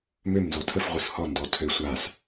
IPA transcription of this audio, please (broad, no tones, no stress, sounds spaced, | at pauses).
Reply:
m ø m n z ɔ tʰ ə f ʁʷ ɯ s h ɔ n d ɔ tʰ ø sʷ a s